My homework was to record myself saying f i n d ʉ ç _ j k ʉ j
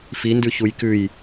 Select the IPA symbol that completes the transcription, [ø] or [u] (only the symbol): u